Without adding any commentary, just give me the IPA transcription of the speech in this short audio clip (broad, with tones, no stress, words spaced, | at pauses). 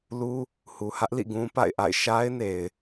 lu˦ | hu˨hä˦ʔlḭ˦˨ ɡũ˦pa̰˦˨ɪ̯ʔa̰˦˨ɪ̯ ʃa˦ɪ̯ne˨ɪ̯